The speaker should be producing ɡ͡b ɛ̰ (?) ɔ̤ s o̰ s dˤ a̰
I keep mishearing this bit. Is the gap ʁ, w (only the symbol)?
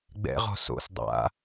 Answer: ʁ